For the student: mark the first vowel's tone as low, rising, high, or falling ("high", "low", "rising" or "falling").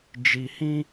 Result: low